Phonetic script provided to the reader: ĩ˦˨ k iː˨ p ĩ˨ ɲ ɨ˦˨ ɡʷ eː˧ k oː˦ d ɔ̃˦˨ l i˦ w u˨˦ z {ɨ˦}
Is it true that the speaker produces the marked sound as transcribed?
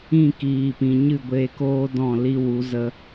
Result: no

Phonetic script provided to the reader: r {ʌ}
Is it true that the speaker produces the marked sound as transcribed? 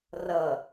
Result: yes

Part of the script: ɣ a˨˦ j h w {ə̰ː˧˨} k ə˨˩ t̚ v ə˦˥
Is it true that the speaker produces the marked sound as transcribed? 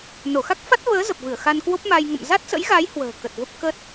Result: no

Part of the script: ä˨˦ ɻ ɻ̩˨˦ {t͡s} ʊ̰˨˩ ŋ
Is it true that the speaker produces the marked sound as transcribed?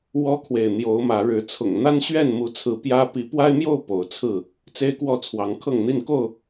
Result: no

